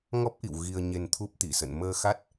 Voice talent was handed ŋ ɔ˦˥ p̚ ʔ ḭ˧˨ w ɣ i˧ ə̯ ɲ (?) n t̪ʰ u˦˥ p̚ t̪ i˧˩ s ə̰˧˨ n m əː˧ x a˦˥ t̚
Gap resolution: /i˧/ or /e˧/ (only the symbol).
e˧